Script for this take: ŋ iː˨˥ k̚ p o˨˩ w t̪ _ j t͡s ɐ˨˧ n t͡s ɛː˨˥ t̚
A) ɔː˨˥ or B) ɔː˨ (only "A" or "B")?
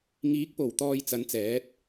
B